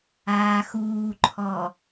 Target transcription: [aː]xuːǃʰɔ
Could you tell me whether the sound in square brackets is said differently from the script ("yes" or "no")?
no